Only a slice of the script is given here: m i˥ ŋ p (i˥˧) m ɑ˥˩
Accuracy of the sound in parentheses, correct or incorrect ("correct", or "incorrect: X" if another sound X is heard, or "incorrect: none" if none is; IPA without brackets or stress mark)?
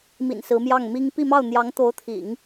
correct